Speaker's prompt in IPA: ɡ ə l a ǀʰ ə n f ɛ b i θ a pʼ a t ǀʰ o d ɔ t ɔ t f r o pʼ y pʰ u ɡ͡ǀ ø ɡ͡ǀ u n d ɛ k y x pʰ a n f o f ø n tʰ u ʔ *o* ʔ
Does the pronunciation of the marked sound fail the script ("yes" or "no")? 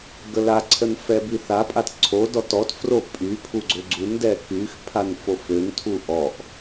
yes